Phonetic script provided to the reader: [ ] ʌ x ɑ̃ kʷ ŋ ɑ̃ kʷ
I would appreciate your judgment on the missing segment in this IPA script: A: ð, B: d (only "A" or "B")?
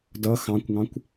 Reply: B